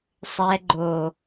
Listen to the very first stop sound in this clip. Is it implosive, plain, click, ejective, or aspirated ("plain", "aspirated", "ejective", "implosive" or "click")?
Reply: click